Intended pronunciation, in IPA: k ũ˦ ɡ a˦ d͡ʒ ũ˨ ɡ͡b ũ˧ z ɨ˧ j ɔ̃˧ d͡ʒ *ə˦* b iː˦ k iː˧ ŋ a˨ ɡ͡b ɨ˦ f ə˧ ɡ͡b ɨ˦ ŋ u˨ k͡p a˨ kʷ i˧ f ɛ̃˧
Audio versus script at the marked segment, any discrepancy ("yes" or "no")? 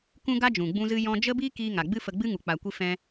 no